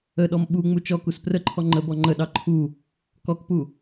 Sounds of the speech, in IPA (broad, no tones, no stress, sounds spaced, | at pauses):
ə ɗ ɔ m ɓ u ŋ͡m u t͡ʃ ɔ k u s p r ə ǃʰ ɔ ŋ͡ǃ ə b ɔ ŋ͡ǃ ə ɗ ɑ ǃʰ u | k ɔ k p u